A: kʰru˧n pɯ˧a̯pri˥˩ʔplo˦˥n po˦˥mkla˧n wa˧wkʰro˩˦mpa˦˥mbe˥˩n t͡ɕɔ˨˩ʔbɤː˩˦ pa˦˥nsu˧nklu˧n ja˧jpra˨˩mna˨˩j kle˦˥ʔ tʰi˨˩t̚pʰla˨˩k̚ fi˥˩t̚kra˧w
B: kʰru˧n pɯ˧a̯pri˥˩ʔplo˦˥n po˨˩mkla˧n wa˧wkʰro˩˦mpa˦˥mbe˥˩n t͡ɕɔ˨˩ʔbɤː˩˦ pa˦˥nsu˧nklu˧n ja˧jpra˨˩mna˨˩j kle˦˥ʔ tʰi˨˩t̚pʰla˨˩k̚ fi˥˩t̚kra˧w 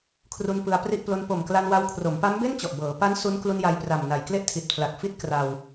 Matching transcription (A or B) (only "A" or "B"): B